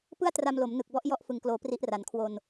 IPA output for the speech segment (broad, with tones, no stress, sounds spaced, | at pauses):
p ɯ˥˩ a̯ t r a˧ m l o˩˦ m n ɯ˨˩ k̚ b ɔ˥˩ ʔ j ɔ˦˥ ʔ f ɯ˨˩ ŋ k l oː˩˦ p r i˦˥ ʔ r a˨˩ n kʰ w o˧ n